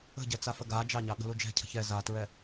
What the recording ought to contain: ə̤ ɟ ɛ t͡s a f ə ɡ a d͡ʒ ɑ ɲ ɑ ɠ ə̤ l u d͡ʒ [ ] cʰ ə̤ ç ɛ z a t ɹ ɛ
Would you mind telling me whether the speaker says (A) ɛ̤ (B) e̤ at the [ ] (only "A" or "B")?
A